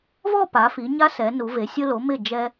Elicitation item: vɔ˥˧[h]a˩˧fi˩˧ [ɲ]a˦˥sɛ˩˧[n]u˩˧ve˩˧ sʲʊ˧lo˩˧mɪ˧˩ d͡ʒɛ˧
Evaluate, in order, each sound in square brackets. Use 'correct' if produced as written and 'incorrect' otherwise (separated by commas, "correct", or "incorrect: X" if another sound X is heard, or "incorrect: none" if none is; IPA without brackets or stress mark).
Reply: incorrect: p, correct, correct